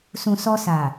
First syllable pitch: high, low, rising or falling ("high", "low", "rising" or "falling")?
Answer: low